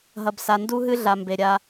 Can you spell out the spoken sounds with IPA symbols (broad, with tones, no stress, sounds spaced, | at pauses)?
ɦ ɐ˨ b s a˨ n d u˦ ɦ ɨ˦ ɮ a˨ m b e˨ ɾʲ a˦